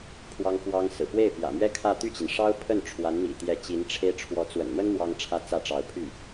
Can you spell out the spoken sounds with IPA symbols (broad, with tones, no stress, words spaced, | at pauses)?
pʰwɑ˥ŋfwɑ˥ŋsɹ̩˨˩ pwe˥˩ɪ̯pjä̰˨˩mɥɛ˥ kʰä˥˧ t̪y˥˩t͡ɕi˩nʂɑ˥ʊ̯pʰə˥˩n ʈ͡ʂʰwa˧˥nmḭ˨˩t̪jɛ˧˥ t͡ɕi˧˥nʈ͡ʂʰe˥ɪ̯ ʈ͡ʂʰwɔ˧˥t͡swə̰˨˩nmə˥n mwɑ˥ŋʈ͡ʂʰä˥t͡sä˥˩ʈ͡ʂɑ˧˥ʊ̯ pʰy˥˩